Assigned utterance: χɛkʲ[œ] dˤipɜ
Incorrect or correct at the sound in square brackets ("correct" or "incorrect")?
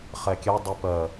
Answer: incorrect